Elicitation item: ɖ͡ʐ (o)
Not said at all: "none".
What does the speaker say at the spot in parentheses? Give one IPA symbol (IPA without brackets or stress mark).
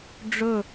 ɵ